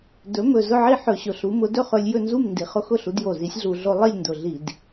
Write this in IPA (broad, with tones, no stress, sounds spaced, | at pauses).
d ɵ˩˥ m ɵ˨˩ z ʊ˥˩ ʕ i˥˩ ħ ɵ˧˩˧ ɕ ʊ˨˩ ɬ u˩˥ m ʊ˩˥ d ɵ˥˩ χ ɵ˧ lʲ j ɵ˥˩ n z u˥˩ m n d i˩˥ χ ʊ˧ x ʊ˥˩ ɬ u˩˥ d j o˨˩ z i˩˥ sʲ ɮ u˧˩˧ ɮ o˧ lˠ i˥˩ lʲ n d ʊ˨˩ ɮ i˧˩˧ d